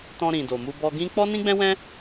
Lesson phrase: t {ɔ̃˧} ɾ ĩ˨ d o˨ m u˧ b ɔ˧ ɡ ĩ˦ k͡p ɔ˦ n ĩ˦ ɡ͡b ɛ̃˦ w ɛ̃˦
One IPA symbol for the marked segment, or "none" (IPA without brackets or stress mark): ɔ̃˧